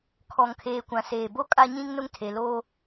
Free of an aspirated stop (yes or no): no